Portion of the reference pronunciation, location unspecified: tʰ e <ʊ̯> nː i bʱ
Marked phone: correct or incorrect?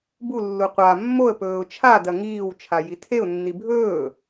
correct